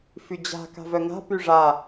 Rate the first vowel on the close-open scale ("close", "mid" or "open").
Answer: close